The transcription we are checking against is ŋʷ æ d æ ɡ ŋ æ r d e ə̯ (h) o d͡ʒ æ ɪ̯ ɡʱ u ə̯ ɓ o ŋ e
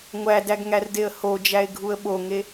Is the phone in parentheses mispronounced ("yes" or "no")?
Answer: no